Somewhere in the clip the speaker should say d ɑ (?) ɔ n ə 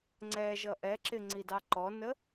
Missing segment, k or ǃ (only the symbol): ǃ